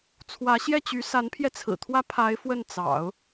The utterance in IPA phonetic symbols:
t͡sʰ w ä˧˥ ɕ j ɛ˥˩ t͡ɕ y˧˥ s a˧˥ n pʰ j ɛ˧ t͡sʰ ɹ̩˨˩ t̪ʰ w ä˥ pʰ a˧˥ ɪ̯ f w ə˥˩ n t͡s ɑ̰˨˩˦ ʊ̯

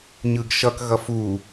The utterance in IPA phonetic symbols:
ɲ ɯ ɡ ʃ ʌ k ɣ ʌ f u

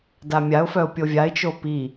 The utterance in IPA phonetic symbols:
d a mʲ a ʊ̯ f œ ʊ̯ pʲ o vʲ a ɪ̯ t͡ʃ o p i

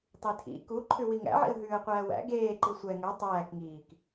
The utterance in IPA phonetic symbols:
tˤ i tʰ ḭ k u ǃʰ ʉ w i ŋ æ̰ ʕ ḭ ə̯ ɦ ʉː ə̯ qʷ æː w æ̰ ɡ eː ǃ i sʷ ɛ ŋ ə˞ tˤ æː k ŋ iː k

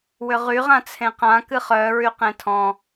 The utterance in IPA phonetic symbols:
w ʏ ʁ y ʁ ã t͡sʰ ẽ q ã k ɨ χ œː ɹ y q ẽ tʰ ɔ̃

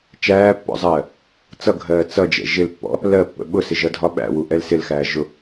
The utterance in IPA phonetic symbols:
t͡ʃ æː pː ɔ̰ zˤ ɜː | t͡s ʌ ɡʱ ɜː t͡s ʌ d͡ʒ ɛ̰ ʒ ɪ l pː ɔ̰ | l ɜ pː ə̰ ɓ ʊ s ɪ ʒ ʌ dʱ ɒ ɓ æ̰ w u ʔ ɛ l s ɪ l x æː ʒ ʊ

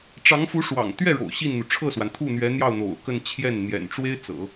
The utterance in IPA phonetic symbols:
ʈ͡ʂ ɑ˧˥ ŋ f u˧˥ ʂ w ɑ̰˨˩ ŋ t̪ ɥ ɛ˥˩ ɻ o̰˨˩ ʊ̯ ɕ i˥˩ n n̪ u˩ ʈ͡ʂʰ ɤ˥˩ s w a˩ n t̪ʰ u˥˩ n̪ ɥ ɛ˧˥ n̪ j ɑ˥˩ ʊ̯ n̪ o̰˨˩ ʊ̯ k ə˥˧ n t͡ɕʰ j ɛ˥˩ n n̪ j ɛ̰˨˩ n ʈ͡ʂ w e˥ ɪ̯ t͡s ɤ̰˨˩˦

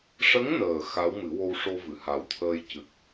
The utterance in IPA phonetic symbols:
ʂ ə˧˥ ŋ n əː˨˩ x a˧˥ w m ɨ˨˩˦ w o˧ w ʂ o˧ v ɨ˨˩˨ h a˨˩ w t̪ʰ əː˧ j c ɨ˨˩ k̚

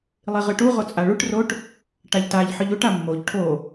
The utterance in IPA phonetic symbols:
lˠ i ʁ ɨ ʈ u ʁ o t͡sʼ a ɭ u ʈ r o ʈ | ʈ a ʎ t a ʎ ħ ɨ ʎ u ʈ a mː o ʎ ʈʰ o

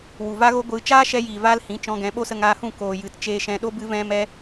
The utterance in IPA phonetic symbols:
w u˨ v a˦ ɣ o˦ ɡʷ ɨ˧ t͡ʃ aː˦ ʃ ɛ˧ j iː˨ v aː˧ l h ĩ˨˦ t͡ʃ ɔ̃˧ ɡ ɛ̃˨˦ ɓ o˦ s ə˧ ŋ aː˧ h ũ˦˨ k oː˨ j ɨ˨ t t͡ʃ eː˨ ʃ ɛ̃˨ ɗ o˧ b ɨ˦ v ɛ̃˦ m ɛ˦

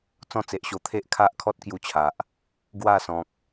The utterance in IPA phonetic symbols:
t͡s ɔ̃˥˧ t͡s e˨ ʔ ɕ o˧ t̪ʰ e˦ ʔ kʰ a˦ ʔ kʰ ɔ˦ t̚ k j u˥˧ t͡ɕʰ a˨ ʔ | ɡ w a˥˧ s ɔ̃˨ k̚

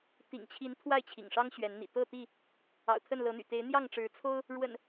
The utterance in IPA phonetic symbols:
t̪ ḭ˨˩ ŋ t͡ɕʰ i˨˦ n t̪ʰ w a˥˨ ɪ̯ t͡ɕʰ ḭ˨˩ ŋ ʂ ɑ˦ ŋ ɕ ɥ ɛ˨˦ n n̪ ḭ˨˩ t̪ ɤ˥˨ t̪ i˥˨ | ɑ̰˨˩ ʊ̯ t̪ʰ ə˥˨ n l ɤ˨˦ n̪ y̰˨˩ t̪ e˨˦ ɪ̯ n̪ j ɑ˥˨ ŋ ʈ͡ʂ ɻ̩˨˦ t͡sʰ o˦ ʊ̯ | ɻ w ə̰˨˩ n

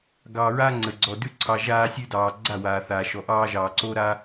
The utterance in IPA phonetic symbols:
ɡ ɑː˨ ɹ a˧ ŋ͡ǀ ə˨ ɡ͡ǀ ɔ˨ d ʉ˦ ǀʰ ɑ˧ ʒ aː˧ sʲ ʉ˧ d ɑː˨ ɡ͡ǀ a˦˨ w aː˨ θ aː˨ ʃ ɔ˨ ʔ ɑː˧ ʒ ɑː˨ ǀ o˦ ɾ a˦

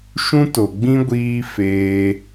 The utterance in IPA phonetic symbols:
ʃ ũ˦ t o˨ ɡ͡b ĩ˦ ɡʷ iː˦ f eː˧

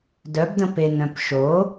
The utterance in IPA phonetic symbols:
d œ b d ə̃ p e n œ̃ p ʃ o

